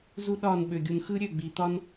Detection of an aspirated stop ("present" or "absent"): absent